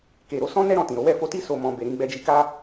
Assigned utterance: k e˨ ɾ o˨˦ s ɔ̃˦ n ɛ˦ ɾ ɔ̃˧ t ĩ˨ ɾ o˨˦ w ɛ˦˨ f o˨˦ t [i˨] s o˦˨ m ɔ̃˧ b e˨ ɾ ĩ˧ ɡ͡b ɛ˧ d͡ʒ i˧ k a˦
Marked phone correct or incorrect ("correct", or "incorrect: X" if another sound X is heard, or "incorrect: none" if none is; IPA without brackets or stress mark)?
incorrect: i˦